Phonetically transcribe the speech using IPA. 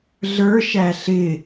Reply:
ɮə˞ʃæ ɬɪ

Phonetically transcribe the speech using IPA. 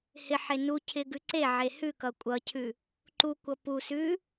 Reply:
hɪħe nucʰɪ ɡʉǀeʕe hʉkʌ kʷʼʌcʰʉ | ǃukʷʌ pu sʉ

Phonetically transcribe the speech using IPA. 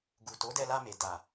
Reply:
ɡu˨to˨˦dɛ˧la˧ me˨ da˨

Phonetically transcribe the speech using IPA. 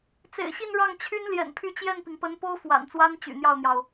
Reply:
t͡sḛ˨˩ɪ̯ɕi˥˧n ɻɑ˥˩ŋt͡ɕʰy˥n ljɛ̰˨˩npʰy˥˧ t͡ɕjɛ˥˩npi˩ŋpə˧˥npo˥ʊ̯ fwa̰˨˩nt͡swa˥n t͡ɕy̰˨˩n̪jɑ˥˩ʊ̯n̪jɑ˩ʊ̯

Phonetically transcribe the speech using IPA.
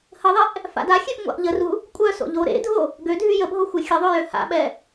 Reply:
həðˤeʔ | fa̰daxʲøf ŋʷa̰ʔʎəru | kʷʼœso̰ ʎoɾḛdʱo | ɡødʱy jəbʱo xʷexʲəðˤø jøha̰ɓɛ

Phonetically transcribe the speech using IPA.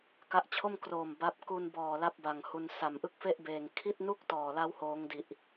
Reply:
ka˦˥ʔt͡ɕʰo˥˩m kroː˨˩m ba˦˥p̚ ku˧nbɔː˨˩ la˥˩p̚ba˨˩ŋhu˧n sa˨˩mʔɯ˥˩k̚fe˥˩ʔbeː˨˩ŋ kʰi˥˩t̚nu˥˩k̚tɔː˨˩la˦˥w hoː˦˥ŋdi˨˩ʔ

